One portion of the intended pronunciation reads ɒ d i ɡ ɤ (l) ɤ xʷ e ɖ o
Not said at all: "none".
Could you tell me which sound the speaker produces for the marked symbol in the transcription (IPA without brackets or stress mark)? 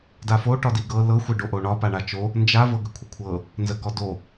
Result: l